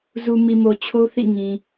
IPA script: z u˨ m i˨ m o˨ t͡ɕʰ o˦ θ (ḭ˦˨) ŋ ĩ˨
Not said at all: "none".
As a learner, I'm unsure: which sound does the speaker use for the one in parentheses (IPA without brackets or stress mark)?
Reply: ḭ˦˨